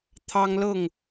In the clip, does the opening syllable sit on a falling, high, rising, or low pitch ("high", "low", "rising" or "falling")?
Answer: high